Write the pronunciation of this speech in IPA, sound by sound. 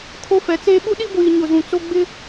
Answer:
kʰo˦fɛ˨˦t͡seː˦ ɓu˦ɗi˦ɡʷiː˨ ɲʊ˨zũ˨t͡so˦ ɡ͡bɪ˦

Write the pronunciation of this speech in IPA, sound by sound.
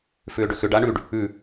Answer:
fʏːɖʏxʏɖ aɳʉɖ | ʉ

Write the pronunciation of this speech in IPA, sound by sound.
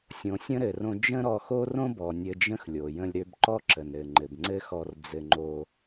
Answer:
sʲõ˨sʲə̃˦ɾɘ˨rõ˧ d͡ʒə̃˦ɾɔ˧xo˦ rõ˦bɔ˨ nʲɘ˧d͡ʒə̃˦xlʲo˨ jə̃˧lʲɾø˧bǃɔ˦ ǁə˨nɾɘ˨ ŋ͡ǃɘ˨bŋ͡ǀɘ˦xɔ˧r d͡zɘ˧ŋ͡ǃo˧

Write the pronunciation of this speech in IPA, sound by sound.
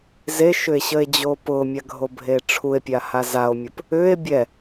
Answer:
zeʃʏe̯ɕəe̯d͡ʑo pʊmʲaɡʱobʱe ʈ͡ʂʰue̯pʲaha zao̯mʲʊp | ʏe̯ bʲɛ

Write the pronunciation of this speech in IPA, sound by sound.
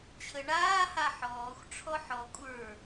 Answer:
t͡ɕʰəɳaː haħɔːxʷ ʈ͡ʂʰɔħɔ kʷʼə˞

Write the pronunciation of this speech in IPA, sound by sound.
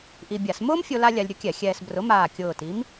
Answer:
ʔi˧bʲa˧˩˧s mʊː˥mfʲo˧ la˥lʲa˧lʲɾʲʊ˥ kʲɛ˧˩˧xʲɛː˧sbrʊ˨˥ maː˨˩kʲʊː˨˩ ti˨˥m

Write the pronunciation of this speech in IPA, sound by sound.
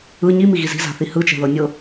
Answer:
ɯ ɲimiɣiz i̤za̤θi hɯt͡ʃɛ̤ðɤ nʲɤ

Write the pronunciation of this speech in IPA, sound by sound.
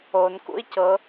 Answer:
on kṵi̯cɤ

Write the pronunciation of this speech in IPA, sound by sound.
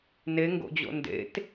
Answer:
neŋɡo̰d͡ʑo̰ ndḛt

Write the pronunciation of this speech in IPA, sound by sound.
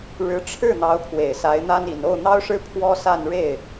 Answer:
ɻɻ̩˧˥ ʈ͡ʂʰɻ̩˥˩n̪ɑ˧˥ʊ̯pʰwe˨˩ɪ̯ sa˧˥ɪ̯n̪a˥ni˨˩n o˥˩ʊ̯n̪ɑ˥ʊ̯ʂɻ̩˥ pʰwɔ˥sa˥˧n ɻe˥˩ɪ̯

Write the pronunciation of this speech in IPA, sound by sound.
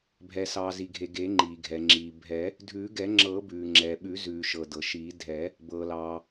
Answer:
bʱɛ˩sɑː˩zi˩ɡʱe˩ ɡe˨˩˦ŋ͡ǃiː˩ɡʱɛ˩ ŋ͡ǁiː˩bʱɛ˨˩˦ | dʱʉː˨˩˦ɡɛ˨˩˦ŋ͡ǁɤː˨˩˦ bʉː˩ŋ͡ǁɛː˩ɓʉ˨˩˦ zʉː˩ʃɤ˩ dɤ˩ʃiː˨˩˦ dʱɛ˨˩˦ | bɤː˩lɑː˩

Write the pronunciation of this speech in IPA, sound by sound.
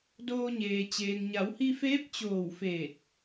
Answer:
doː˧ɲeː˩ t͡ɕeː˩ŋɲa˩˧whi˧feː˧˥p̚ t͡ɕoː˧˩wfeː˧˩t̚

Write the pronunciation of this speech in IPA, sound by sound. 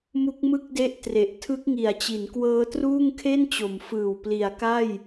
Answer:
mu˦˥k̚mɯ˥˩k̚de˦˥ʔ tre˨˩ʔ tʰɯ˦˥k̚ŋi˨˩a̯t͡ɕi˩˦nkwɤː˦˥ truː˥˩ŋkʰe˥˩nt͡ɕo˩˦mfɯː˨˩w pli˩˦a̯ka˥˩j

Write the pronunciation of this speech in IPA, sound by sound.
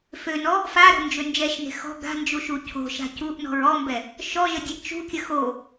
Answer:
fønɔ | faɾo̤nd͡ʒø nd͡ʒɛʃne̤ xɔ̤ ɡa̤nd͡ʒuʃu cʰo̤ʃa̤ cuʔnɔ̤ɹ ɔmbɛ | ʃɔʒədʲɛʔ t͡ʃṳkʲə xo

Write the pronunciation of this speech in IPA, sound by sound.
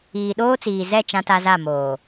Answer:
iː˨ɗoː˦t͡siː˨zɛ˦˨ t͡ʃã˦ta˦ za˦˨ moː˨

